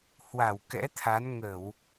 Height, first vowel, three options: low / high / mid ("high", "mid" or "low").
low